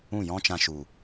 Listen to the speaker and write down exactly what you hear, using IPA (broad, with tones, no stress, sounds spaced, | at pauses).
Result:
ũ˦˨ j ɔ̃˦ t͡ʃ ã˧ ʃ u˨